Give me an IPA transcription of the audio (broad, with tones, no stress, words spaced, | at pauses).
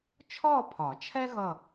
t͡ʃʰɔː˥˧pʰɒ˨˩˦ t͡ʃʰɛ˥ɣʌ˧˩